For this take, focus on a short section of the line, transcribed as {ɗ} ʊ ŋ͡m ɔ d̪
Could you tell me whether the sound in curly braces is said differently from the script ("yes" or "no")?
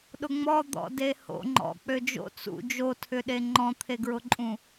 no